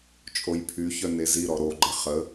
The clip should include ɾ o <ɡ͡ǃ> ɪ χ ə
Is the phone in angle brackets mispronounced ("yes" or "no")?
no